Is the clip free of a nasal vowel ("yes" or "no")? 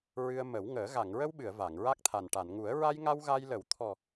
yes